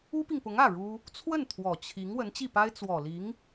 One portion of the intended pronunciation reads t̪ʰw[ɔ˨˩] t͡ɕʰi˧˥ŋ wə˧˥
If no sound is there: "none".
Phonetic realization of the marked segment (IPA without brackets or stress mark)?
ɔ˨˩